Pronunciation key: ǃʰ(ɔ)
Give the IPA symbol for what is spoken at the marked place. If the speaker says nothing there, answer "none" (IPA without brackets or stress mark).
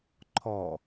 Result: ɔ